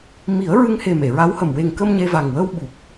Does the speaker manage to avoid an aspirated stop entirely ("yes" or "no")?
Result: yes